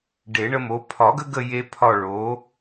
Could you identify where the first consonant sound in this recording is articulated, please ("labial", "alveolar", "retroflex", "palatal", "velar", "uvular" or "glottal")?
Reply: retroflex